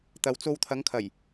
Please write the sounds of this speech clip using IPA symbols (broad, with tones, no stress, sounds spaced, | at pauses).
t̪ ɐ˨ w t͡s o˧ w t̪ʰ ɐ˨˧ ŋ kʰ ɐ˨˩ j